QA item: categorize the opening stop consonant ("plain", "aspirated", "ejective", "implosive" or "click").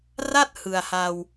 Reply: plain